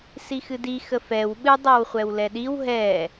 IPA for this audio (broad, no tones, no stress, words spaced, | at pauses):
sixɨdixə fɛw ɓɨ dˤawχʷɛwlɛɗiw ɦɛ